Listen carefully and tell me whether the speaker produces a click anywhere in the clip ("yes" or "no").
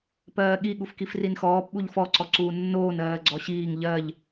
yes